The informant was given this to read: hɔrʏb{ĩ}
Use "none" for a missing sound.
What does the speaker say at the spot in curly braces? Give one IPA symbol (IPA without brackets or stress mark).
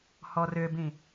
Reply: ĩ